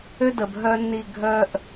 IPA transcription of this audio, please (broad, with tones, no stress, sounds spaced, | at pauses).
ø˦ d ə˨ b ɦ œ˦ nː i˦˨ ɡʱ œ˦ ʔ